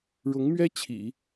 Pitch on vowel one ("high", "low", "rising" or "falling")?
rising